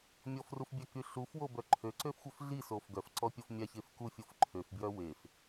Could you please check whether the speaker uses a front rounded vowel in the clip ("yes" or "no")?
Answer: yes